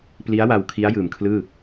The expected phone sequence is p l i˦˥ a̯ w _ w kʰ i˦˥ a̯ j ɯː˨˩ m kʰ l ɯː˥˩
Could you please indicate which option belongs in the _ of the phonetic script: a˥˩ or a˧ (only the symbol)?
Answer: a˧